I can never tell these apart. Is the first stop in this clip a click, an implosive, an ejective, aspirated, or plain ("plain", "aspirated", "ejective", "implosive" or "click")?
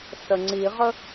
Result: click